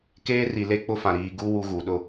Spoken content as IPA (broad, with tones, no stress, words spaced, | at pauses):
keː˦ri˨le˦ k͡pʊ˦fã˨ ɾiː˨ɡu˦ wu˦ɣu˨ ɗʊ˦˨